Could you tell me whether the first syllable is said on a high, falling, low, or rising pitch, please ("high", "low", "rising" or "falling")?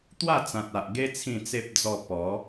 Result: falling